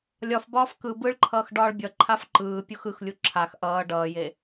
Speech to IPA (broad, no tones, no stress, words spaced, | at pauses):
lʲɒf bɒːfkɯ bɯɭǃʰʌːx ɖɒːɭbʲʌ ǃʰafǃɯː pʲuxɯxlʲu ǁʰax ʔʌː ɖʌːje